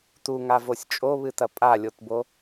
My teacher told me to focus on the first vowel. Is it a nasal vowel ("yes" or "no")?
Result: no